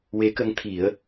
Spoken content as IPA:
w e˧˥ k ə˧˥ ŋ t̪ʰ i˨˩˦ ə̯

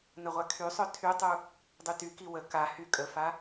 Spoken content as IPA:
n ə ʁʷ a kʰ y sˤ œ tʰ y tˤ u | dˤ y t y k i w ə k a h y kʼ ə f a

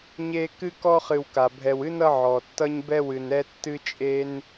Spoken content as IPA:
ɲ e˦ k ɨ˥ k ɔ˦ χ ɨ˨ w k a˩ bʱ ɛ˨ w ɨ˥ n ʌ˦ ʕ ɔ˩ tː ʌ˦ ɲ b ɛ˦ w ɨ˨ n ɛ˦ tː ɨ˥ t͡ʃʼ e˥ n

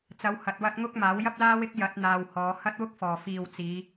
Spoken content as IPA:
t͡s ɐ˨˧ w h ɐ˨ t̚ w ɐ˧ t̚ ŋ ʊ˥ k̚ m aː˨˥ w j ɐ˥ p̚ l aː˥ w ɪ˥ k̚ j ɐ˨˥ t̚ n̪ aː˧ w h ɔː˨˧ h ɐ˥ t̚ w ʊ˥ k̚ f ɔː˨˩ f iː˨ w t͡s iː˨˧

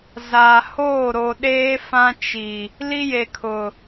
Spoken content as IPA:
z aː˨ h oː˦˨ ɾ o˨ ɗ eː˦ f ã˦ t͡ʃ i˨ | l i˦ j e˨ kʰ ʊ˨

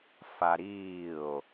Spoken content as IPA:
f a ɾ iː o̯

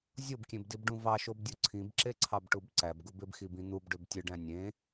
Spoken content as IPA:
zʲ o b kʲ ẽ b d i b ɖ ũ v ɑ ʃ o b dʲ o ǀʰ ĩ b ǁ e ǀʰ ɑ b ʈ u b ǀ æ b ɡ u b e b x i b ĩ n̪ u b ɖ ø b tʲ ɯ ɖ æ̃ nʲ ẽ

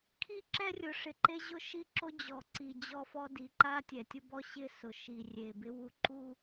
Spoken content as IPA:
kʰ i˦ ǁ ɛ˦ rʲ ʊ˨ ʂ ɪ˨ ǃ e˦ ʑ ʊ˦ ʃ i˦ ǁ o˦ d͡ʑ ɔ˨ ǀ i˨ d͡ʑ ɔ˦ f ɔ˦ d i˨ ǃ a˦ tʲ ɛ˨ tʲ ʊ˦ b ɔ˦ ɕ ɪ˦˨ s ʊ˨ ʃ i˨ rʲ e˨ b ɪ˦ w u˨ ǃ u˦

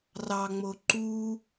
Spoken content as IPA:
r ɑ ŋ͡m o ǃ u

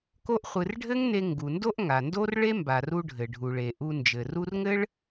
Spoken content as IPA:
k o˥ ʔ χʷ ɨ˧ r ɖʱ ɘ˥ ŋ n e˧ ŋ ɡ u˩ n d o˥ ʔ ŋ a˩ n d o˥ r ɭ e˥ m b a˩ r u˧ ɖʱ ɘ˩ ɖʱ u˩ ɭ e˩ ʔ u˧ n d͡ʒ ɘ˩ r u˥ r ŋ ɘ˥ ɭ

